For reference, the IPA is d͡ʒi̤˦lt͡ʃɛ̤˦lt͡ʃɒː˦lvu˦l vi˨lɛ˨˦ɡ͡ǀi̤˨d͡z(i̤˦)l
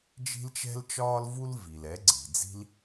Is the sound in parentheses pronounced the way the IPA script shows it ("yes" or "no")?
yes